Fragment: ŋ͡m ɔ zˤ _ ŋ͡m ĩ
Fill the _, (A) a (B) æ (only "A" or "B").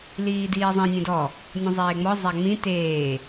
A